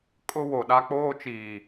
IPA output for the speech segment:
kʼ ʊ˦ w o˨ ɗ a˦ k͡p oː˦ t͡ʃ iː˨

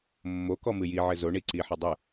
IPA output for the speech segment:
mː o k ɔ m ɨ j i ʕ ɘ z o ɳ i ǀ i ħ ɘ dˤ ɨ

